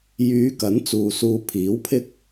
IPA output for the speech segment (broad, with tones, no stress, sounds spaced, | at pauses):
j yː˨˧ k ɐ˨˥ n t͡s uː˨ s uː˧ pʰ iː˨˥ w pʰ ɪ˥ k̚